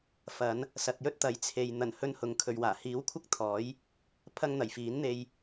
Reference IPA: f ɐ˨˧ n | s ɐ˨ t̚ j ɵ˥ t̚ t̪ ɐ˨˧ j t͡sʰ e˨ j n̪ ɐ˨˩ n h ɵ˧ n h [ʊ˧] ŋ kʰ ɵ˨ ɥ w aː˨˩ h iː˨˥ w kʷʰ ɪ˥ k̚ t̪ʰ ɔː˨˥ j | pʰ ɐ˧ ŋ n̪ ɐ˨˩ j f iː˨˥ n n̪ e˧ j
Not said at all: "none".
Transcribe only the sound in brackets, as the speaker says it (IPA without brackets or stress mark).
ʊ˨